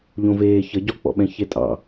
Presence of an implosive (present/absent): present